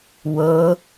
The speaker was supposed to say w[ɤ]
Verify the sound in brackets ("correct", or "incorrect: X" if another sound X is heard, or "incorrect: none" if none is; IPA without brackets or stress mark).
correct